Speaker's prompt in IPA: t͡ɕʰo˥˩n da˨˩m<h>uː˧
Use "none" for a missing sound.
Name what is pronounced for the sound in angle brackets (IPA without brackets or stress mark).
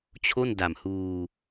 h